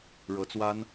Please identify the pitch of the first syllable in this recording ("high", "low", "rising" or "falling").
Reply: rising